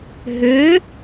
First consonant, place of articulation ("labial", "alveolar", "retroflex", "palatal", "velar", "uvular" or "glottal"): glottal